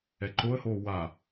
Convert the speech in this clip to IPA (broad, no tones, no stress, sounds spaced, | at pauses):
ɛ ǃ o ə̯ h oː w a